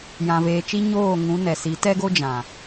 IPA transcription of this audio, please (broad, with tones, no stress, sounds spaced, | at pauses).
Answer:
j ã˨ v eː˨ t͡ʃ i˦ ɲ oː˦˨ ŋ ũ˨˦ n ɛ˨ s i˨˦ t ɛ˦ ɡ o˦ d͡ʒ ã˨